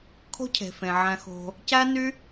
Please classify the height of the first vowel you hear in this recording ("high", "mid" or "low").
mid